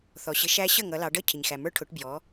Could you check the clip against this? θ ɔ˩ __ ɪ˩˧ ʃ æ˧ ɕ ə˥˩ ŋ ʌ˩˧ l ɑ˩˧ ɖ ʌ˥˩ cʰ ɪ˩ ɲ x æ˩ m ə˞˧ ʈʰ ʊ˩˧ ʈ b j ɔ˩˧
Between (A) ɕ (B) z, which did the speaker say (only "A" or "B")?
A